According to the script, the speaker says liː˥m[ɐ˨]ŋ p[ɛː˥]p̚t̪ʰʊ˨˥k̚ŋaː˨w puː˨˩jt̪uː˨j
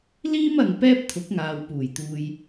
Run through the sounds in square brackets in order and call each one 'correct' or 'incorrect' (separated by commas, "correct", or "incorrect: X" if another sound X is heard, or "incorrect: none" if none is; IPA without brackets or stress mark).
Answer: correct, correct